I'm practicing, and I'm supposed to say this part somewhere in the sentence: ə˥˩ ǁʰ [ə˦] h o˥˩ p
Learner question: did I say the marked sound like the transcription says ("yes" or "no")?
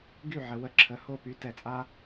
no